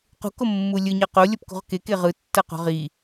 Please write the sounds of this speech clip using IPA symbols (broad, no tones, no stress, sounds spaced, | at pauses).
q ṳ k o mː u lʲ ɯ ɲ ʌ q o lʲ ʌ p k ṳ ʁ k e k e ʁ ɯ tː ʌ q o̤ ʁ i